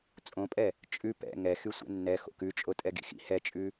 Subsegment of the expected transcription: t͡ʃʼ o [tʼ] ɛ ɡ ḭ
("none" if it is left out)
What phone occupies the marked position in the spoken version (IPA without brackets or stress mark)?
tʼ